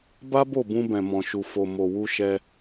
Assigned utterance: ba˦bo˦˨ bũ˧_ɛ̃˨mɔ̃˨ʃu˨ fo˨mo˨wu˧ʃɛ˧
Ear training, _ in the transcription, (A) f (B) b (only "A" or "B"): B